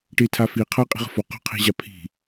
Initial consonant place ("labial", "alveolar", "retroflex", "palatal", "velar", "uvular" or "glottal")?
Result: retroflex